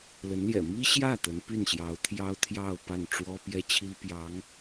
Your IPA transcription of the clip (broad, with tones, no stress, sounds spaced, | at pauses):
l ə˧˥ n l j ɛ̰˨˩ m i˥ ɕ j ä˥˩ t̪ ə˧˥ n p y˥˩ n ɕ j ɑ˧˥ ʊ̯ t̪ʰ j ɑ˥ ʊ̯ t̪ʰ j ɑ˥˧ ʊ̯ p a˥˩ n ʈ͡ʂ w ɔ˥ p j ɛ˥ t͡ɕʰ i˥ p j ɑ˧˥ ŋ